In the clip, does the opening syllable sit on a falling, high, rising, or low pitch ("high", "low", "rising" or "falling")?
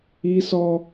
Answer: high